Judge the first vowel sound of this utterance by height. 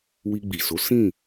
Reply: high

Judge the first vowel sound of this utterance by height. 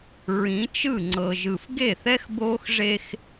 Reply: high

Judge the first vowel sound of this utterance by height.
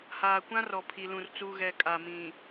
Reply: low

